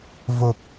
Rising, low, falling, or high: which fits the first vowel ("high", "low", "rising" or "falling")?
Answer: low